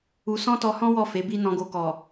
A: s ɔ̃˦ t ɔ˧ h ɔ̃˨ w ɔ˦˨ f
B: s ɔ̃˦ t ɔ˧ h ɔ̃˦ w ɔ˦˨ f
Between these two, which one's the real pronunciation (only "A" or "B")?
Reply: B